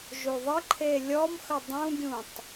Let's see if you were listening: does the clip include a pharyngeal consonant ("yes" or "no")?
no